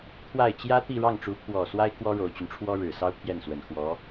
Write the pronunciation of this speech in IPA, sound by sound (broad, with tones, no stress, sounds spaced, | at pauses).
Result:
t̪ʰ w a˥˩ ɪ̯ t͡ɕ j ä˥ t̪ i˥˧ ɻ ɑ˥˩ ŋ ʈ͡ʂ u˧˥ pʰ w ɔ˨˩ s w a˥ ɪ̯ k w ɔ˥ ɻ o˨˩ ʊ̯ t͡ɕ y˦ n ʈ͡ʂʰ w ɔ˥ ɻ ɻ̩˨˩ s ɑ˥ ʊ̯ pʰ j ɛ˥˩ n s w ə˨˩ n x w ɔ˧˥